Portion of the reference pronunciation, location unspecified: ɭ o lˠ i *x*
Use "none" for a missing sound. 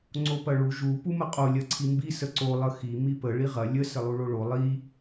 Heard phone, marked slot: none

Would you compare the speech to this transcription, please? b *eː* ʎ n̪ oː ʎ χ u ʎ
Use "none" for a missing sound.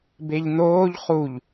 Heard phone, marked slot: e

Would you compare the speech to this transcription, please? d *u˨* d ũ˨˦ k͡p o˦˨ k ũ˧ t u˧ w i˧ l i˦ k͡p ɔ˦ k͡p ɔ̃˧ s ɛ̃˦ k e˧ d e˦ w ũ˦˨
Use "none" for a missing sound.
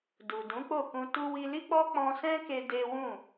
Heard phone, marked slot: u˨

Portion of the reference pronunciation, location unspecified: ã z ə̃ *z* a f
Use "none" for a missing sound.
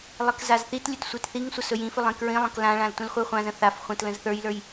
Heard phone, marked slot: θ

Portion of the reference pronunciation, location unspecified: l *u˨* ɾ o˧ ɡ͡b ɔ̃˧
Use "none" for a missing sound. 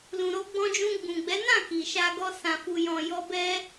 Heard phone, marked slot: ũ˨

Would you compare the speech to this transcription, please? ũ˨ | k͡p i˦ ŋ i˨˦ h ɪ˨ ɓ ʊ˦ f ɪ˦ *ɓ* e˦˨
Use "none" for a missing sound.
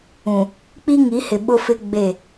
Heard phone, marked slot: ɡ͡b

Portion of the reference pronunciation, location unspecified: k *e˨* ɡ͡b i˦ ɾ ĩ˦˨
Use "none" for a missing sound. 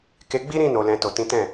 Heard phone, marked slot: e˧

